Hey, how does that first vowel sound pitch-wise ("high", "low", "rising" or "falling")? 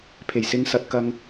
low